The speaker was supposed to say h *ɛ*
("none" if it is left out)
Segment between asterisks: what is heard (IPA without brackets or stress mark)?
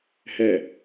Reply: ɛ